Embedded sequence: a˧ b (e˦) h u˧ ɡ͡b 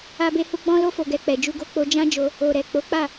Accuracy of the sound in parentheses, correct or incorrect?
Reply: incorrect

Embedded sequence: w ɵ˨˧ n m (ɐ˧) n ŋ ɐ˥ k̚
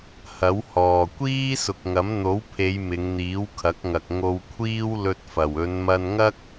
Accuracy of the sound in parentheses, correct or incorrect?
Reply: correct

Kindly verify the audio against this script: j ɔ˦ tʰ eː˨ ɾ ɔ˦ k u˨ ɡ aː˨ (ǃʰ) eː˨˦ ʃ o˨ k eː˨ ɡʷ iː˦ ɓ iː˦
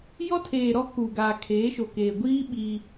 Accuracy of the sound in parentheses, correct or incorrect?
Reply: incorrect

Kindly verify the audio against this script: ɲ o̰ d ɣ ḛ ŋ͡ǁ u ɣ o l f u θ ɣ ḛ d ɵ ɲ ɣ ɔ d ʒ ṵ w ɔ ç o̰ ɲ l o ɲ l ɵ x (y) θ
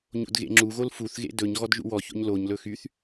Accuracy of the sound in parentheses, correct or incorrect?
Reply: correct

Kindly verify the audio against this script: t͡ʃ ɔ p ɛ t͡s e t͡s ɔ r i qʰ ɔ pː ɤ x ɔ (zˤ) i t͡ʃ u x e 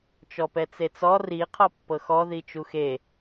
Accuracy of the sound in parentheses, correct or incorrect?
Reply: incorrect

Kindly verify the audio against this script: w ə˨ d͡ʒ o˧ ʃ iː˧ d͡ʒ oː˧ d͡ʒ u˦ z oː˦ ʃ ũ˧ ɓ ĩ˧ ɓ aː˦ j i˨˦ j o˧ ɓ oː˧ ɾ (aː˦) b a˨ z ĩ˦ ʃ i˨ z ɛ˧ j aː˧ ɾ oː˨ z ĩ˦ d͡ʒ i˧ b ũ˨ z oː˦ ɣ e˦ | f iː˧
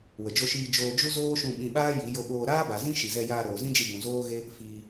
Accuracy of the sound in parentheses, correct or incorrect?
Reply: correct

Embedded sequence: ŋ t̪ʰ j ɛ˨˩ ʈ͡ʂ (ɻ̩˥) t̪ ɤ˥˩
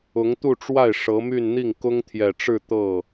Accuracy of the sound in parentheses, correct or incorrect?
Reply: incorrect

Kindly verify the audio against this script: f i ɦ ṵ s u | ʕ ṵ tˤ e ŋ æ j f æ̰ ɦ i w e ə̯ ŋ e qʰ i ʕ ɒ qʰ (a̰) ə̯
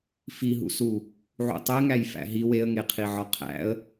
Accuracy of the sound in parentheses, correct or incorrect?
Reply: incorrect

